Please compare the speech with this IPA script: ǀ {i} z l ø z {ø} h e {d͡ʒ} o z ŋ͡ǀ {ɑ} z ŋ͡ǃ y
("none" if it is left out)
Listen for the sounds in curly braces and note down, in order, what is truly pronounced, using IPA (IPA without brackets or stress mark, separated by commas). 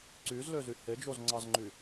y, y, d͡ʒ, ɑ